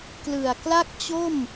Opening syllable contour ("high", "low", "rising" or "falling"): low